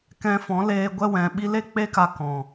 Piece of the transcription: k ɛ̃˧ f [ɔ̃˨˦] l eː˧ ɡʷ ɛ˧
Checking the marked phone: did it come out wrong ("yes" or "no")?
no